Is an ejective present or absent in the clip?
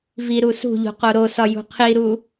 absent